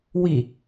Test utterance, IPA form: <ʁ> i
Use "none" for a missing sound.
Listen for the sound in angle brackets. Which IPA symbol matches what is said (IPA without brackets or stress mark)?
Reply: w